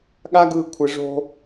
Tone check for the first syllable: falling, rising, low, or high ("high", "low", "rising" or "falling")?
high